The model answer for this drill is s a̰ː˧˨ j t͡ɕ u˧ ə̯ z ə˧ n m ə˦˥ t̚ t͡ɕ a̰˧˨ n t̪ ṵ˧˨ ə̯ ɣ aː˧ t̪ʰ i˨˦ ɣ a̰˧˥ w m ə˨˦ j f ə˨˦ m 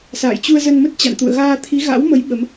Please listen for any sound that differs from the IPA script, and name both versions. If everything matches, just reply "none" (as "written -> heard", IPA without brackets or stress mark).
f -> ɓ